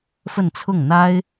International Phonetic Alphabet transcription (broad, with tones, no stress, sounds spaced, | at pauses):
f ə˥˧ n t͡sʰ ʊ˥˩ ŋ n̪ a˥ ɪ̯